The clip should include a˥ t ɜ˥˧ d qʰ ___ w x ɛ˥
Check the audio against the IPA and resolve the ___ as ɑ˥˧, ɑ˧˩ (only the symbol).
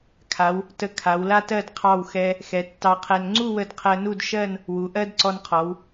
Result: ɑ˥˧